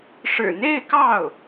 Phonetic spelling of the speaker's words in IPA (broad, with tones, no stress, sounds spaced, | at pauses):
ʂ ɻ̩˨˩ n̪ e˥˧ ɪ̯ k ɑ˥˩ ʊ̯